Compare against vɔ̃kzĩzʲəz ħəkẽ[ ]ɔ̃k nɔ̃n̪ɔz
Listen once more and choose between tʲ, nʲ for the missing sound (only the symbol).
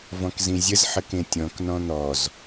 tʲ